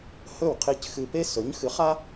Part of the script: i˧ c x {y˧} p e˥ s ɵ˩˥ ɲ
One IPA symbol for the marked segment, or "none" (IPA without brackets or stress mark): ɨ˧